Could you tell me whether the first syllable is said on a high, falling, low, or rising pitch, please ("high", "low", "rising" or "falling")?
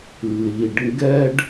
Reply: low